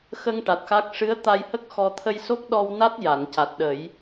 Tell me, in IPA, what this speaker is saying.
xə˧ŋ ʈa˨˩t̚xa˦˥k̚ ʂɨ˧˥ə̯t̪a˧jhə˦˥k̚ xɔ˧ t̪ʰə˧jso˦˥k̚ɗɔ˧w na˦˥t̚ ja˨˩˨nca˨˩t̚ɗə˨˩˦j

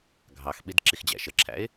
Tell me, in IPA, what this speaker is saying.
ɡʱɑxɓid ǁixd͡ʑæ̰ʃəǁʰæ̰ɪ̯

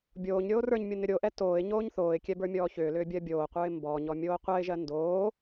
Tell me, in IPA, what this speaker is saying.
bʲoːɲɾʲoː rə˞ɲmʲʊ nʏɾʲoʔɛ toːɪ̯ ɲoːɲθoːɪ̯kʲɛ bə˞mʲɔːçʏːlʏː bʲɜbʲoːqʷə˞ɪ̯ mbɔɲɔ mʲoːqʷɜɪ̯ʒɜ ndoː

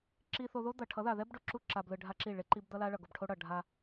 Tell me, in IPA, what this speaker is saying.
ǁi˨θo˨ ðo˦ d̪ʌ˨ ʈʰʌ˨˦ða˨ðɛ˦b ɖo˨ǁu˦ ǁa˨b lɯ˨ɖʱa˦ǁi˦˨ ɭe˦ǃi˦b d̪ʌ˦la˦ɭʌ˨ ɡo˨bʈʰo˦ɽʌ˨ ɖʱa˦

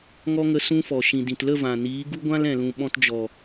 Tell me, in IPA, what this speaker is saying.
ŋɔ˦ŋə˧ sũ˦fɔ˨ ʃĩ˨dĩ˨t lə˦˨vã˨niː˨˦ ɡu˦ɡʷã˦lɛ̃˨lũ˨ ɓɔ̃˧td͡ʒɔ˨

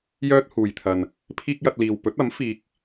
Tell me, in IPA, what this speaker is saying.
jœː˥t̚huː˨jt̪ʰɐ˨n | pʰiː˥k̚jɐ˧t̚liː˨w pɵ˨˥t̚ɐ˨˥m fiː˧k̚

